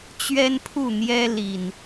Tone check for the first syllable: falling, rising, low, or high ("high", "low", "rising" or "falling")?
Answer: high